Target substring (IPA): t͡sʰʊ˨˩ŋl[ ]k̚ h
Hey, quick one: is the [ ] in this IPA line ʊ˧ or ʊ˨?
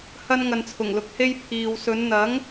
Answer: ʊ˨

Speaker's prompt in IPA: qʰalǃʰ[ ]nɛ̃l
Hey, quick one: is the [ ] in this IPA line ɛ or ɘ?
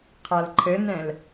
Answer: ɘ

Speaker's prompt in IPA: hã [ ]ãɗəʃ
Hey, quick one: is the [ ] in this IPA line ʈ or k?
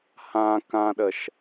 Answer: k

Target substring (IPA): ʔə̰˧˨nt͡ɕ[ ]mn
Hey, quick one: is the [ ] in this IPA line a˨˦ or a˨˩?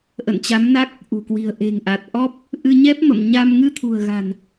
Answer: a˨˦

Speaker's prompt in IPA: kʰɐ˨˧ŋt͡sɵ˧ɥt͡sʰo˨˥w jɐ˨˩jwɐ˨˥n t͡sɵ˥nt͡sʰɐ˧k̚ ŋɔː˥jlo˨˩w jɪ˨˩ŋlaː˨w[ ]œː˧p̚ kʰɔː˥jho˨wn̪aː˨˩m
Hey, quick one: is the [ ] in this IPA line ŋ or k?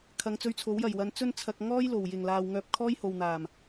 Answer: ŋ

